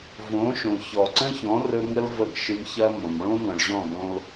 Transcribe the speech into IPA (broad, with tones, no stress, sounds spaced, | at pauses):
v õ˨˦ ʃ õ˨ ç ɔ˨ ǀ ə̃˦ ç ɔ̃˨˦ r ɵ˧ ŋ ə˦ l v ə˦˨ ɡ ʃ ɨ˧ m ç ɐ˦ m õ˨ m ɭ õ˦ ŋ ɔ̃˨ ɭ ʑ ɔ̃˦˨ ɡ õ˧ l